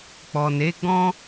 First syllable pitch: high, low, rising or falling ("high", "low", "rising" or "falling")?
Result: low